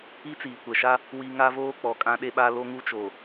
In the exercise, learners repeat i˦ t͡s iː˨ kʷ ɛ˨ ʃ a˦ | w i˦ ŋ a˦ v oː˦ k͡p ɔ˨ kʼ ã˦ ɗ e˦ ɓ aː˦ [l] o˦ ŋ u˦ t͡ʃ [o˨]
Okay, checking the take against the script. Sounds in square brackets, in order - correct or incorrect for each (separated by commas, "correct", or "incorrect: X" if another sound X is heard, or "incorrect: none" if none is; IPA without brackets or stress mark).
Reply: correct, correct